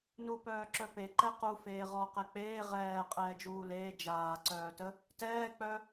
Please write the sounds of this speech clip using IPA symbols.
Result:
n u p œː ǁ œ p e ǃ ɛ q u f eː ʁ ɔ q ɛ k͡p eː ʁ ɛː qʼ ɛː d͡ʒ uː l eː d͡ʒ aː ǀ œː t ə | t ɛː k͡p œ

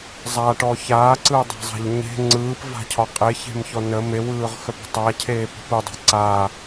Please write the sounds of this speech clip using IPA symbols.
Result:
zˤ a ʈ ɔ ç aː ǀ ɯː dˤ a̤ zˤ a̤ ʎ ɲ e̤ ŋ͡ǀ ɯː p v a̤ cʰ ɒ qʼ e ç e̤ m ç ɔ n ə m e w ɯː ʁ x œ p ə̤ tˤ a cʰ eː p ə̤ p ɯ dˤ ə̤ ǀ aː

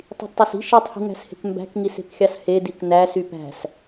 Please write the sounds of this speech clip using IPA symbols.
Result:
tˤ i̤ d tˤ o s i̤ ʃ i tˤ h i̤ ŋ æ̤ s h e̤ k m b æ̤ k ŋ i s e̤ k xʲ ɑ s h e d i k n æ s y p æ̤ s

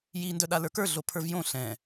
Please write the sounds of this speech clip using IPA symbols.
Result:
j i n d œ ɗ a l ə˞ k ə˞ ɮ o pʰ ə˞ v j õ ɬ ɛ̃

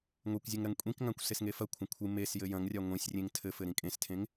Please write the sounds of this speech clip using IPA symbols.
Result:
ŋʷ e kʷ zʲ ɘ ŋ ɾ ɐ ŋ kʷʼ ĩ k ŋ ã kʷ s e s ŋ e f ɐ kʷʰ ɐ̃ kʷʰ ɨ m e s j ɘ j ɐ̃ ŋ rʲ a ŋʷ ẽ sʲ rʲ ẽ ŋ tʰ ɘ f ɘ ɾ ĩ kʼ ẽ s tʰ ẽ ŋ

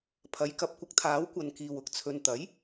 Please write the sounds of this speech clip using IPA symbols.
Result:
pʰ ɐ˨˥ j k ɐ˧ p̚ kʷ ɪ˧ k̚ t̪ʰ aː˨˥ w kʷ ɐ˨ n k iː˨ w ʊ˥ k̚ t͡sʰ ɵ˧ n t̪ ɐ˨˥ j

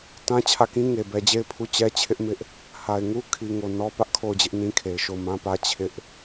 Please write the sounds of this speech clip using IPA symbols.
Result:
t ã˦ t͡ɕʰ ä˦˨ k ĩ˦ ŋ e˨ b ɛ˨ d͡ʑ e˦˨ ɪ̯ pʰ u˦˨ t͡ɕ ɛ˦ t͡ɕʰ ɪ˦ ʔ m ɪ˦ ʔ | h a˨ ɪ̯ ŋ u˦ kʰ i˨ ŋ o˨ n ɔ˦ p ä˦ ʔ kʰ o˦˨ ʊ̯ d͡ʑ ɪ˦ ʔ n ĩ˦ kʰ e˨ ɪ̯ ʃ o˦˨ ʊ̯ m ã˦ p ä˦ t͡ɕʰ ɪ˦ ʔ

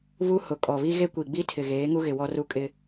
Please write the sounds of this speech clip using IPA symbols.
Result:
β u˦ h ʊ˨ kʼ ɔ˨ β i˦ ɣ e˦ kʷ i˨ ɡ͡b i˦ tʰ ɪ˨ ɣ eː˨˦ ŋ u˦ ɣ ɪ˨ w ɔ˦ r u˦ kʼ ɪ˦

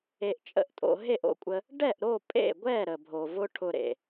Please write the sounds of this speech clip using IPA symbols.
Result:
e˧ ʔ t͡ʃʼ ə̰˦˨ ʔ tʼ o̰˧ ɦ e˦˨ ʔ o̰˧ kʷʼ ə˧ | ɖ ɛ˦˨ ʔ ɾ o˦˨ pʼ ḛ˦˨ ɡʷ ɛ˦˨ ɾ ə˨ bʱ o˨ v ʊ˦ ʈʰ ʊ˧ ɾ ḛ˨

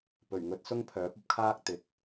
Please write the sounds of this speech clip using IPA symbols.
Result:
p ɵ˨˩ ɥ ŋ ɵ˨˥ t̚ s ʊ˥ ŋ pʰ œː˨˥ p̚ ɐ˧ p̚ kʰ aː˥ k̚ t̪ ɪ˨˥ k̚

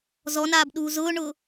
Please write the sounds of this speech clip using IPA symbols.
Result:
z ɔ n aː b ɗ uː z ʊː ɳ ʊː

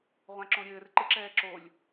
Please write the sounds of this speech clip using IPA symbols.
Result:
ʁʷ ã ǁ õ ɾʲ ɘː r ǃ ɨ ǁ ɛː ǁ o lʲ

